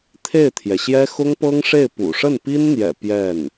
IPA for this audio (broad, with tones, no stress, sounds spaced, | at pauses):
t̪ʰ e˥˩ ɪ̯ t̪ʰ j ɛ˩ ɕ j ɛ˥ x ʊ˥ ŋ p ɤ˥ ŋ ʂ e˥˩ ɪ̯ p ṵ˨˩ ʂ ə˥˩ n p i˥ n n̪ j ɛ̰˨˩ p j ɛ˥˩ n